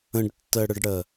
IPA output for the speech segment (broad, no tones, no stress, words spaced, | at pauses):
ə̃ɖtːɜɽəɖɽɜ